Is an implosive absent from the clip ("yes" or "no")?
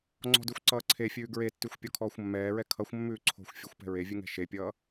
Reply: yes